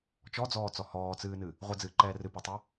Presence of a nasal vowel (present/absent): absent